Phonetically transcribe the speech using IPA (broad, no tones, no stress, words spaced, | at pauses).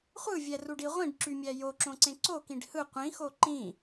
χʷɯvʲæruɖi ʁʷĩɖǁymʲæ joǁõǀẽ ǀokĩɖ hɯ qʷĩxo ǃĩ